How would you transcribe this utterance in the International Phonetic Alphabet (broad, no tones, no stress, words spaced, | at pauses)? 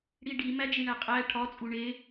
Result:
ɽiɖi mæd͡ʒiɳæqʼæ ʈʰɒ t͡sʼuɳe